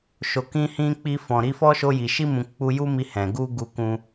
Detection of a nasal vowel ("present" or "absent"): present